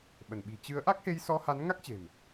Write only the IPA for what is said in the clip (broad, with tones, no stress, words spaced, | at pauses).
ɓə˧˩nɓi̤˨˩ t͡ɕɨ˨˦ə̯ ʔa˦˥k̚he˧jsɔ˧ ha˨˦nŋa˦˥k̚t͡ɕe̤˨˩m